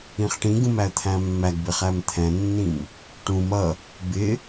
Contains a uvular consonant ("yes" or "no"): yes